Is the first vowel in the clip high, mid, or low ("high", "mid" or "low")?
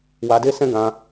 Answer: low